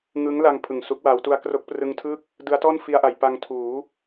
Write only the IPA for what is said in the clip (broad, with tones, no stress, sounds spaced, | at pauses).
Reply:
ŋ ɯ˦˥ ŋ l a˧ ŋ pʰ ɯ˨˩ ŋ s u˦˥ k̚ w aː˦˥ w t u˧ a̯ k r o˦˥ k̚ p r ɯ˧ ŋ tʰ ɯ˥˩ k̚ | d ɯ˦˥ a̯ t ɔː˥˩ n f i˧ a̯ ʔ a˩˦ j p a˧ ŋ tʰ uː˩˦